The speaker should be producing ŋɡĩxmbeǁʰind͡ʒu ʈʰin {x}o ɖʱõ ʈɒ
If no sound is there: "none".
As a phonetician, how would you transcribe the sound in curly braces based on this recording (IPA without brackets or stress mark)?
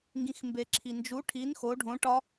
x